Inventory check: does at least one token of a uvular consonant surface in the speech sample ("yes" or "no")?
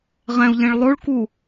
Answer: yes